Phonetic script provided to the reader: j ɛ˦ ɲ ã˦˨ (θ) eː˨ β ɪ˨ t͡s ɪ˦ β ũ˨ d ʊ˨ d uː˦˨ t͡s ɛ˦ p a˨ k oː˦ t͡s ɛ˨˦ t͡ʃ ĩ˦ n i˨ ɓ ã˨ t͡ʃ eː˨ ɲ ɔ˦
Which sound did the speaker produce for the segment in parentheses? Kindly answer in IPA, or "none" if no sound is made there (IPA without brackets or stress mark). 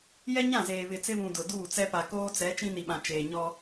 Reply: z